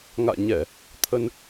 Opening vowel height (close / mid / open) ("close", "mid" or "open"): open